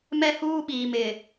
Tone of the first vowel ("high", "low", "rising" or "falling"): high